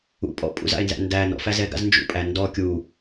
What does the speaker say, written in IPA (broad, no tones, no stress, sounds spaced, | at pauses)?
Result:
ṵ pʼ ɔ̰ pʼ ṵ z a̰ e̯ n z æ̰ n d æ n ɔ̰ f æ z ɛ ɡ a̰ z n d͡ʒ ṵ pʼ æ n d ɔ kʲ u